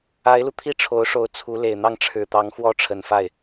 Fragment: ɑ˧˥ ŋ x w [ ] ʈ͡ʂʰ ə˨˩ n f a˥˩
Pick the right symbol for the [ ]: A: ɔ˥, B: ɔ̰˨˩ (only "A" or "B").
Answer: A